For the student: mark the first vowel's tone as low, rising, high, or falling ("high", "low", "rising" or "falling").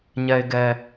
low